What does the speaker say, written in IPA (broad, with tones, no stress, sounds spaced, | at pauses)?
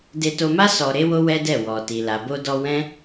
d e˧ t o˧ m a˦ s ɔ˧ ɾ e˦ w o˦ w ɛ˦ d ɛ˦˨ w ɔ˨ t i˨ l a˨ b o˧ d ɔ˧ w ɛ̃˦